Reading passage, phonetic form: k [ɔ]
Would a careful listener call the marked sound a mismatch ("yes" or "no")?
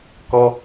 no